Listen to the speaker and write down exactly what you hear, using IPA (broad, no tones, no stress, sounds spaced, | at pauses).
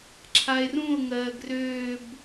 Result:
ǁʰ a e̯ r ũ o̯ ŋ ɜː ɡ r øː b